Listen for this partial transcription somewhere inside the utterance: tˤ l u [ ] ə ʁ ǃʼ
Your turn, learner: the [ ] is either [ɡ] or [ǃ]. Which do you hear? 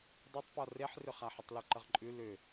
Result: ǃ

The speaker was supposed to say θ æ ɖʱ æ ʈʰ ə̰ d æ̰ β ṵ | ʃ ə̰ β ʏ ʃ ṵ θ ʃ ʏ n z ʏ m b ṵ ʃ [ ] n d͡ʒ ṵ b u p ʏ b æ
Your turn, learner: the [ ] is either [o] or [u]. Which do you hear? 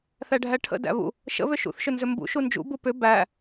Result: u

